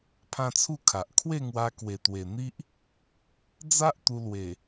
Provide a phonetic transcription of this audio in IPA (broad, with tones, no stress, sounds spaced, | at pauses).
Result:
pʰ ã˦ t͡sʰ u˥˧ kʰ a˨ ʔ kʰ w e˥˧ ŋ w a˧ k w e˨˩ t̪ w e˨˩ n̪ i˦ ʔ | d͡z a˦ ʔ t̪ u˧ l w e˨˩